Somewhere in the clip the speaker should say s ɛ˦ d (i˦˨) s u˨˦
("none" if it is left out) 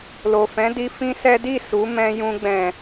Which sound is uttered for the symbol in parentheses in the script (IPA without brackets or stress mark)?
i˦˨